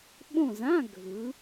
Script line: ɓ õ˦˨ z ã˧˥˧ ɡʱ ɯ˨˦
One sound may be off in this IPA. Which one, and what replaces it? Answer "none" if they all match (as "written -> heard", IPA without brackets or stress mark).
none